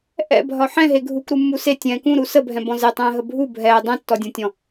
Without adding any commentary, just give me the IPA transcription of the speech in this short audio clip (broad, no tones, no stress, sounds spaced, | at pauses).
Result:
ʔ ɛ̰ bʱ ɒ ħ ɛ̃ ɦ e ɡʱ u k ɾ u mː u s e tʲ ɛ̃ː k ũ ɾ u s ə bʱ ɛ̃ b ɔ̃ z e tˤ ɛ̃ː ɦ ə bʱ u bʱ ɛː dˤ ɛ̃ tː ɔ dʲ ɔ̃ tʲ ɔ̃